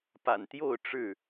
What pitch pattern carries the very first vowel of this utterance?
low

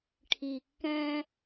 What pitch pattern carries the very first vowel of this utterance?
low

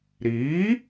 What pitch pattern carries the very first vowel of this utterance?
rising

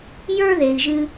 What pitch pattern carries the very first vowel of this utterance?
high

